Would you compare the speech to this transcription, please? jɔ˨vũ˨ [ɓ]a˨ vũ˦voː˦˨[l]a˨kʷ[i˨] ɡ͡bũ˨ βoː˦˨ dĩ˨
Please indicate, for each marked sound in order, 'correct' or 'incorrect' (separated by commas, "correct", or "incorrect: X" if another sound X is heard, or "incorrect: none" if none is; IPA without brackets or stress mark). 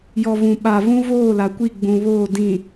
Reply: correct, correct, incorrect: i˦˨